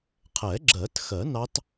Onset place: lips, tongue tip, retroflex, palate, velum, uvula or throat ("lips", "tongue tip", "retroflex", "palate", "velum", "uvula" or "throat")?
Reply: uvula